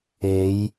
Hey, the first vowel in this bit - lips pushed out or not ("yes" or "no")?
no